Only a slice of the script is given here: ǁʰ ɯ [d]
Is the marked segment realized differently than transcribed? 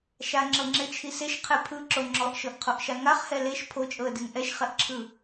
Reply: yes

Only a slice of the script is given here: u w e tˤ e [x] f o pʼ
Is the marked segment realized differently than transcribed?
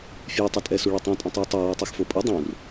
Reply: no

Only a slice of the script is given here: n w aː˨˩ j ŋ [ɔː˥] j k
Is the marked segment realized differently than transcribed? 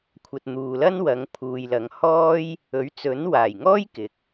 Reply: no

